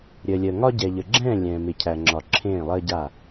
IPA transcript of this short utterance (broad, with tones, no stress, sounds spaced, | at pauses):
ɾʲ əː˨ lʲ əː˨ ŋ ɒ˦ ɟ ɛ˨ ʎ ə˨ ɡ͡ǁ ɛ̃ː˦˨ lʲ ɛ̃ː˨ m ɪ˨ cʰ æ˨ ŋ͡ǁ ɒ˨ ǁʰ ẽː˦˨ lˠ əː˦ ɟ a˦˨